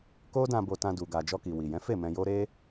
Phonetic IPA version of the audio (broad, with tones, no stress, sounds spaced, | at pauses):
k o˦ d ã˧ b o˧ t ã˧ d u˨ ɡ a˨ d͡ʒ ɔ˧ k i˨ w i˨ j ɛ̃˨˦ f e˦˨ m ɛ̃˧ j o˦ ɾ e˦